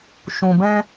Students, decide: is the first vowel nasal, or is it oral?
nasal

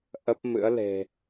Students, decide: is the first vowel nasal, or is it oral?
oral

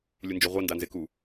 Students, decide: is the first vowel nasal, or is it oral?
oral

